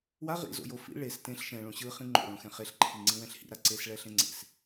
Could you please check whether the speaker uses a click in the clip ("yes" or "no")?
yes